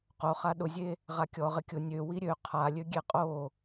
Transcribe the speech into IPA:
q o χ a ɗ ʊ zʲ e | ʁ a kʲ ɔ ʁ ɪ kʲ ʊ nʲ ø w i ɾʲ ø qʰ a lʲ ø ɡʲ e qʼ o

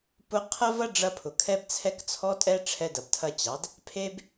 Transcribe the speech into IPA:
p ʊ˧ qʰ ɐ˦ v ɐ˦ ɖ͡ʐ ɐ˧ pʰ ʊ˨ kʰ ɛ˦ b t͡sʰ ɛ˦ k t͡sʰ ɔ˦ tʼ ɛ˦ ʈ͡ʂʰ ɛ˧ d ɐ˨ b tʰ ɐ˧ t͡ɕ ɑ˨˦ d | pʰ e˦ b

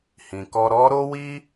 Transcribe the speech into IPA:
h ĩ˨ k ɔ˧ ɾ ɔ˦ ɾ o˦ w i˦

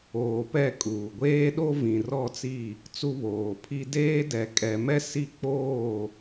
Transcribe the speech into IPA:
oː˨ p ɛ˦˨ kʼ uː˨ ɡʷ eː˦ ɗ o˦ v ĩ˨ r ɔ˦˨ t͡s i˦˨ | t͡s u˦ β oː˨ pʰ i˦ d eː˦ d ɛ˨ kʼ ɛ˨ m ɛ˦ s i˦˨ k͡p oː˦˨

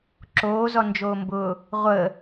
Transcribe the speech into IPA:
ǁ oː z ɔ n d͡ʒ oː m b ʊː | ʁʷ əː

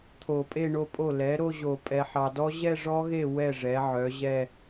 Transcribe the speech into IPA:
t̪ʰ o˨˩˦ pʼ e˥˧ ɳ o˦˥ pʼ o˥˩ l ɛ˩˥ ɾ o˥˧ ʑ o˨˩˦ pʼ ɛ˨ ħ ɑ˨ d ɔ˦˥ ʑ ɛ˥˧ ʐ ɔ˦˥ ɣ e˥˩ w ɛ˥˩ ʐ ɛ˩˥ ʕ œ˩˥ ʑ ɛ˥˧

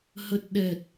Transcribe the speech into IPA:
h ə˨˩ t̚ ɗ ɛ˨˩ t̚

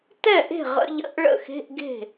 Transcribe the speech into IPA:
t ɛ˥˩ ʔ e̤˥˩ ʁ ə̰˧˥˧ ʎ ə̰˧˥˧ ʔ ɭ ə̰˥˩ x e̤˧˥˧ ʔ ɡ e̤˥˩

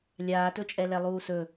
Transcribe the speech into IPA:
lʲ aː t ɵ t͡ʃʼ ɛ l ɛ lˠ uː s ɵ

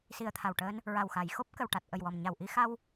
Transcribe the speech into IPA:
s i˨˩ ə̯ t̪ʰ a˨˩ w ʈ əː˧ n | ɹ a˨˩ w x a˨˩˨ j x o˦˥ p̚ k ə˨˩ w ʈ a˨˩ t̚ ʔ ə˨˩ j w ɔ˨˩ m ɲ a˨˩ w ʔ i˧ x a˧ w

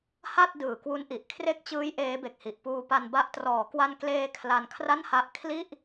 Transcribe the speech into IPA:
h a˥˩ t̚ d ɯː˨˩ k w u˦˥ n ʔ i˨˩ ʔ kʰ r e˦˥ k̚ t͡ɕ ɯː˦˥ j ʔ eː˦˥ b e˨˩ k̚ h i˨˩ ʔ p uː˧ p a˧ n b a˦˥ ʔ t r ɔː˩˦ k w a˧ n k l eː˧ kʰ l a˧ n kʰ r a˥˩ n h a˦˥ ʔ kʰ l i˥˩ ʔ

